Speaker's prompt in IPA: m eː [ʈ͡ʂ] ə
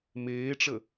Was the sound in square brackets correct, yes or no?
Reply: yes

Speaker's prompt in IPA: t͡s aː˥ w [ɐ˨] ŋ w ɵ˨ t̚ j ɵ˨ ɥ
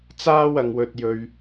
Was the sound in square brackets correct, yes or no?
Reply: yes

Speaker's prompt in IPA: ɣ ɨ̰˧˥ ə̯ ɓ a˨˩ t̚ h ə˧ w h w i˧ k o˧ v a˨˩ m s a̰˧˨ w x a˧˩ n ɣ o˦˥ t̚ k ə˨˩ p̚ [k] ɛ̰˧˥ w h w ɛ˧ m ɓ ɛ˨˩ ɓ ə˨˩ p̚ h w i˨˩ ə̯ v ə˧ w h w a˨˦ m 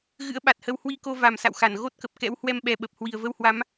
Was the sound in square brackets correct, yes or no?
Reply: yes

